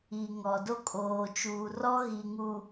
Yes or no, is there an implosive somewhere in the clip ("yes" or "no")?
no